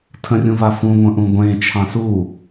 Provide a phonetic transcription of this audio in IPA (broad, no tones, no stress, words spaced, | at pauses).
tʰə̃rʲũva fũŋʷə̃ʔũ ɡʷẽ t͡ʃʰɑ̃su